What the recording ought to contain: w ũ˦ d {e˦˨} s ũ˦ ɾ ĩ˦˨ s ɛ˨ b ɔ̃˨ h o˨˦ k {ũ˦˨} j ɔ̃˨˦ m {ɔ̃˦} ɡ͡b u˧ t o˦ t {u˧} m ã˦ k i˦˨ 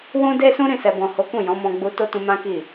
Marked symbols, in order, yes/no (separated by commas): no, yes, no, no